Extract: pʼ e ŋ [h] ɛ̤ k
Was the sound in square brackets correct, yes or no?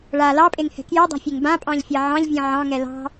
yes